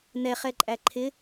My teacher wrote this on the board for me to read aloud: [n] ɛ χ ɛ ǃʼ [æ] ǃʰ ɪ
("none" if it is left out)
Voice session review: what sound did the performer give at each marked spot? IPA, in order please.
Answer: n, æ

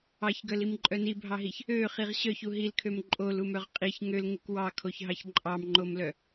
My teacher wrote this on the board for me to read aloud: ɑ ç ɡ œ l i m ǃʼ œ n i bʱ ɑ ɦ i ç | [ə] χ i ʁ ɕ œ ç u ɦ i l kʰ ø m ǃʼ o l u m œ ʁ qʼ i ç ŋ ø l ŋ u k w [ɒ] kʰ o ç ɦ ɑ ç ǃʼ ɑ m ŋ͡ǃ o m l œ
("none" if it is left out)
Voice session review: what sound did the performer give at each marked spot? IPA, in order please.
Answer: ø, ɑ

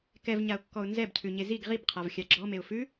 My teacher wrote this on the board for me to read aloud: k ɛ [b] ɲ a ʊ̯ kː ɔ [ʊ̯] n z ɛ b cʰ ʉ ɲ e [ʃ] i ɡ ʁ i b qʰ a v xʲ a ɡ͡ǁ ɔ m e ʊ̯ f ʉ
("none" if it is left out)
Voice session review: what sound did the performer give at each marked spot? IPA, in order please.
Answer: v, ʊ̯, z

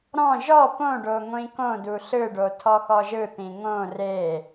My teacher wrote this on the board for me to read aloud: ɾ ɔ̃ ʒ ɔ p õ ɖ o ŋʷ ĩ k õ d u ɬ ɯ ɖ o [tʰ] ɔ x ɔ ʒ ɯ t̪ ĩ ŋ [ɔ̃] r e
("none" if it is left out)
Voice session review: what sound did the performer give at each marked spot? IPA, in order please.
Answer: tʰ, õ

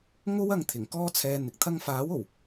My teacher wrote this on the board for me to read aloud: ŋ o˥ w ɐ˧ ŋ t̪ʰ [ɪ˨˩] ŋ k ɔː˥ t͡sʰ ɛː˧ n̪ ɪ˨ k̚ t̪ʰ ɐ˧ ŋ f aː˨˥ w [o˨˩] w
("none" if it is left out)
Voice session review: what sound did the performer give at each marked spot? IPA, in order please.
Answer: ɪ˨˩, o˨˩

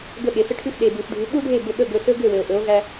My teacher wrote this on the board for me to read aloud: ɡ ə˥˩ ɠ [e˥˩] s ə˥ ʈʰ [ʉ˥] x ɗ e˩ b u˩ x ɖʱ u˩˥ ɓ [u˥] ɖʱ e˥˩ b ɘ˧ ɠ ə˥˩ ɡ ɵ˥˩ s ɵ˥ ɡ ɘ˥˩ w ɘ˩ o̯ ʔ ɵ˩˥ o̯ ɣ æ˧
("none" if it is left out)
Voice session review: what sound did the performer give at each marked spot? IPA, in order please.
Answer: e˩, ʉ˥, u˥

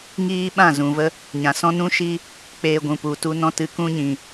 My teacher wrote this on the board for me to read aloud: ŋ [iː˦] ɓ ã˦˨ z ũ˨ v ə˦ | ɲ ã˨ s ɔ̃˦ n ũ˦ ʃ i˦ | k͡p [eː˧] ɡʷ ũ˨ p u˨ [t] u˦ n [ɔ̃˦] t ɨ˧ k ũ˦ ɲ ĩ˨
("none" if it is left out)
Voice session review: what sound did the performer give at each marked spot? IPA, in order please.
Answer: iː˦, eː˧, t, ɔ̃˦

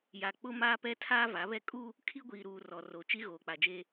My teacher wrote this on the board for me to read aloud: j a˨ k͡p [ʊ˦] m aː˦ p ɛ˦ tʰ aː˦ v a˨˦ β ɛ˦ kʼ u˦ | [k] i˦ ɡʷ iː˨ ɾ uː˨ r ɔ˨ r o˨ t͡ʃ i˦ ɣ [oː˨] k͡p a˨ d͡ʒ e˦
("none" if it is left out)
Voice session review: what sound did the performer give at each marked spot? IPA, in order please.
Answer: ʊ˦, kʰ, oː˨

